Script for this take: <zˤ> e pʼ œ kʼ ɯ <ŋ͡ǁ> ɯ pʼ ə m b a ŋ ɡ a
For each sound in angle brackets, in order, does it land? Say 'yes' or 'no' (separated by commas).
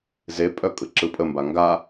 no, no